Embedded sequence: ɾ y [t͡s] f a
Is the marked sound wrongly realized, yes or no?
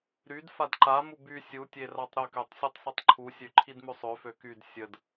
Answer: yes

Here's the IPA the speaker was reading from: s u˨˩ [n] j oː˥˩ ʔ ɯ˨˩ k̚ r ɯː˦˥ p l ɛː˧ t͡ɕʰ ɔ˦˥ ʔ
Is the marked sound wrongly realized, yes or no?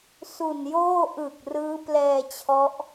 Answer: no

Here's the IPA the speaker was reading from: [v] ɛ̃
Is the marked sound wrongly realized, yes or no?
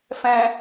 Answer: yes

